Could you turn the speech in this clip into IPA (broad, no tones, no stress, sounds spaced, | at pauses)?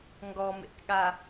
ŋ ɡ ɔ m ḛ k ɠ a